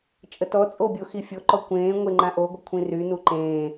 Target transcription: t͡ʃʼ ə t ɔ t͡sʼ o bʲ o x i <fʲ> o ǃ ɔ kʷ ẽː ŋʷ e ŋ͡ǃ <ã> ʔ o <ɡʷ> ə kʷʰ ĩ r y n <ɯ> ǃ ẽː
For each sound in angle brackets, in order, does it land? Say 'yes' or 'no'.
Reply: yes, yes, yes, no

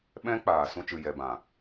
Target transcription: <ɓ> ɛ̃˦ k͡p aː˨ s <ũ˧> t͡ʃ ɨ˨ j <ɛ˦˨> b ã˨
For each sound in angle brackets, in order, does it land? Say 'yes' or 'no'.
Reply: yes, yes, no

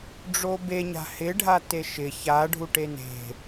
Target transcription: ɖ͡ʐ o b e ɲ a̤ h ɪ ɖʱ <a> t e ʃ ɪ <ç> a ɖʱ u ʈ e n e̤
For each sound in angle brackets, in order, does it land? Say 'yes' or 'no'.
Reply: yes, yes

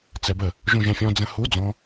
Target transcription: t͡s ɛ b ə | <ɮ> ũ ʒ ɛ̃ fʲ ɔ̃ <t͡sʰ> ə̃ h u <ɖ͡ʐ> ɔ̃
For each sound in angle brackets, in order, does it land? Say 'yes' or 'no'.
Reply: no, no, no

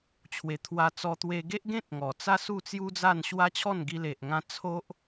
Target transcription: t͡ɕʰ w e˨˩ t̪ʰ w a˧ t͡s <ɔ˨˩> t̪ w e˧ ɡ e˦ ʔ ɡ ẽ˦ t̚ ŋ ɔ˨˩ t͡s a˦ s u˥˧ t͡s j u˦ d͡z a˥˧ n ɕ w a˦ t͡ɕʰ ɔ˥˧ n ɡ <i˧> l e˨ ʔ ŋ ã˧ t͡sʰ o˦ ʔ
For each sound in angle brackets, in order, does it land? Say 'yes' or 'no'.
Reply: no, yes

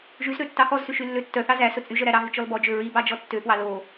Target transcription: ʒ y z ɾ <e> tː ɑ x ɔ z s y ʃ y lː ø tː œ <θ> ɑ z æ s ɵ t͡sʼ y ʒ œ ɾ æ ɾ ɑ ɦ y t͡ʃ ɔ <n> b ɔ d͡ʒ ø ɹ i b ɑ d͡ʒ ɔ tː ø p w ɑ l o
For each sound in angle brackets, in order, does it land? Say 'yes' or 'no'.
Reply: no, yes, no

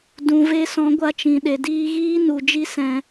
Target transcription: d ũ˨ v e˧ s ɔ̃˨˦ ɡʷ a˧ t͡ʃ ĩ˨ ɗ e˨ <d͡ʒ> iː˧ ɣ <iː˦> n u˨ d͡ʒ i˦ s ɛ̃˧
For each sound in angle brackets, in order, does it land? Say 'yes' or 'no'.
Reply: no, yes

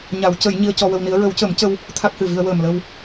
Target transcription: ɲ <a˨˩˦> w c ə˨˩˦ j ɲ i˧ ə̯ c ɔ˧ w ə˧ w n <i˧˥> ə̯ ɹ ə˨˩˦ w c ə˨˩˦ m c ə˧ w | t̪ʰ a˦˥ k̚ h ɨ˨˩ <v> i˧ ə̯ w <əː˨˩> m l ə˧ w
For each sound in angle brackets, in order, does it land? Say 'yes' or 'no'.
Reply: yes, yes, yes, yes

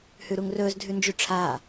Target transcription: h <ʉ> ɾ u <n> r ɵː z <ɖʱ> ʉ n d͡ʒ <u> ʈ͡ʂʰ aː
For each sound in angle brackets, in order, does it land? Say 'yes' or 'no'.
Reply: yes, no, no, no

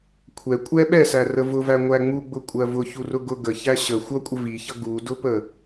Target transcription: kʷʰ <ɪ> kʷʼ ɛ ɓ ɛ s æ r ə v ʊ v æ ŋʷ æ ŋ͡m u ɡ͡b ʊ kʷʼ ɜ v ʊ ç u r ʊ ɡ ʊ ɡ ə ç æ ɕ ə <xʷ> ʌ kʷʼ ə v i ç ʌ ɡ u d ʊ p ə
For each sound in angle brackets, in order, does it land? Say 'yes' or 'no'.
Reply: no, yes

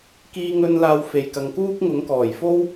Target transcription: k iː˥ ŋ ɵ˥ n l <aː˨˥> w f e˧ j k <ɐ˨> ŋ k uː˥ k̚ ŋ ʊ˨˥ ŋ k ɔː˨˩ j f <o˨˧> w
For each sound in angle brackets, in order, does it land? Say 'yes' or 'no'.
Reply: no, no, no

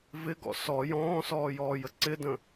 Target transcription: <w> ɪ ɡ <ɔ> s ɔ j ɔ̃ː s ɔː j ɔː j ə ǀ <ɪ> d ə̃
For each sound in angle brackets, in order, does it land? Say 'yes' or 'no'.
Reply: no, no, yes

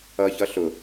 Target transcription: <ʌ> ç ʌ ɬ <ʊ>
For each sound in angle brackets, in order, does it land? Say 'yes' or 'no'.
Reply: yes, yes

